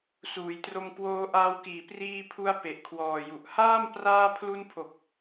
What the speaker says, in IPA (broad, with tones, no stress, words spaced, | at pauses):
suː˩˦jtro˧mkwoː˧ ʔaː˧wkiː˨˩ priː˧pʰu˧a̯ pe˨˩ʔkʰwɔː˨˩ju˨˩ʔ haː˥˩m praː˧pʰlu˧npʰo˨˩k̚